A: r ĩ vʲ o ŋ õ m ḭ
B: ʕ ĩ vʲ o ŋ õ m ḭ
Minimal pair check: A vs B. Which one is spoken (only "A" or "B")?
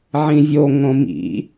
B